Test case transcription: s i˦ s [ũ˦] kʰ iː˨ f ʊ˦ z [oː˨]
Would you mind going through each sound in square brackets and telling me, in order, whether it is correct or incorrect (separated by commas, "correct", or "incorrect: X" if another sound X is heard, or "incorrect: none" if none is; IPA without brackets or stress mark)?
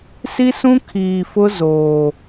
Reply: correct, correct